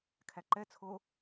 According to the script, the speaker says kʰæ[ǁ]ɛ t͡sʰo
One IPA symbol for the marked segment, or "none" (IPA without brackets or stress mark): ǃ